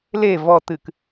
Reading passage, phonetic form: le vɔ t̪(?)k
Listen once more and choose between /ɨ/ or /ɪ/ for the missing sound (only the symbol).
ɨ